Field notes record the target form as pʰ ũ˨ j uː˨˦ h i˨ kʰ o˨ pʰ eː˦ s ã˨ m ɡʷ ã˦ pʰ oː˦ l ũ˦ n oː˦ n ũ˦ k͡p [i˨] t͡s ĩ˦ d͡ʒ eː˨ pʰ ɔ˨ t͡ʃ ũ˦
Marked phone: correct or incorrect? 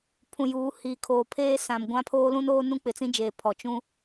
incorrect: ɪ˨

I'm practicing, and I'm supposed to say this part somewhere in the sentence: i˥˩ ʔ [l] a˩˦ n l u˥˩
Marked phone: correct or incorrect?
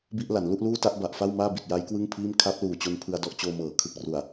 correct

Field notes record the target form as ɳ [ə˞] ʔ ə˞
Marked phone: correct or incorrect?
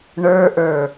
correct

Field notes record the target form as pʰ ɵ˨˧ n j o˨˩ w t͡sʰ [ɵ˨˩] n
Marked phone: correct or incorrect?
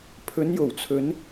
incorrect: ɵ˨˧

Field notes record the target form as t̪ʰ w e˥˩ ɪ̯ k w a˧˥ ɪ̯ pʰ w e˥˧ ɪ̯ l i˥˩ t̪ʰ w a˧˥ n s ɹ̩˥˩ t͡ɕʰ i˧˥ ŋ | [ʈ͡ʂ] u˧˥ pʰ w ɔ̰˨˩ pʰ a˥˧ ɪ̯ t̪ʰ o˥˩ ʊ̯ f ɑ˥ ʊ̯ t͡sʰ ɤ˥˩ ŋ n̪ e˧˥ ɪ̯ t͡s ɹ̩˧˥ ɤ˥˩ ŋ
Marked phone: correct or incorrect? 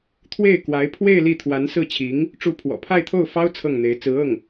correct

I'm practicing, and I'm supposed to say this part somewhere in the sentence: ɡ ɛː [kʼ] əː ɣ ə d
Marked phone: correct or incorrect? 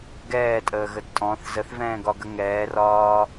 incorrect: tʼ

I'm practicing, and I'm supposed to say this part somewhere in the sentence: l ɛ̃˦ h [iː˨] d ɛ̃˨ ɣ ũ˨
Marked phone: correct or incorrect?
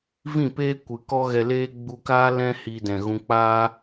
incorrect: iː˧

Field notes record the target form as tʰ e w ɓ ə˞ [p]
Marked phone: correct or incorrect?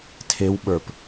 correct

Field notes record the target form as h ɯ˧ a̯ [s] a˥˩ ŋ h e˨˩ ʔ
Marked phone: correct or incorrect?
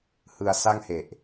correct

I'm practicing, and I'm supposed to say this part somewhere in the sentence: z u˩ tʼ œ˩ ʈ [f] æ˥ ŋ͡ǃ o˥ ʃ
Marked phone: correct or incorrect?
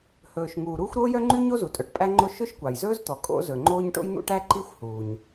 incorrect: pʼ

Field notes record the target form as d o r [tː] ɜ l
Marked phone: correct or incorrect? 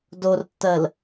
correct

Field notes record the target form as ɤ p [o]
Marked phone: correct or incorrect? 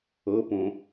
incorrect: õ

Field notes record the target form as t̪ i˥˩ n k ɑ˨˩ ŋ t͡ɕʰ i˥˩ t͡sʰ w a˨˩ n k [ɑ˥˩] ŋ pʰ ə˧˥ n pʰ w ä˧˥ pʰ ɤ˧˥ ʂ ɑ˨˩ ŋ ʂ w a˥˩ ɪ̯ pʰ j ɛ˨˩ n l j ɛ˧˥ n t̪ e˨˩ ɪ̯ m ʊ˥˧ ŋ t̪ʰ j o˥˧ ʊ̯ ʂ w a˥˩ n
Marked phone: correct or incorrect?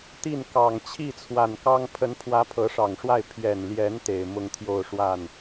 incorrect: ɑ˥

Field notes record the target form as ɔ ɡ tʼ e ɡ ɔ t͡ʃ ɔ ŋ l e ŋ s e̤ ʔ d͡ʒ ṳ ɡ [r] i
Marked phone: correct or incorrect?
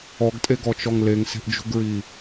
incorrect: ɹ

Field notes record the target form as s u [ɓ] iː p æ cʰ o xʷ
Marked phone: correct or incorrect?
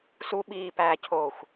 correct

